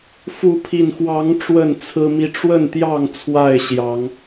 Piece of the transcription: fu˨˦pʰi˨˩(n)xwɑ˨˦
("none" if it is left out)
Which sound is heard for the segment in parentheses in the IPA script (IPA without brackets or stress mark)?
n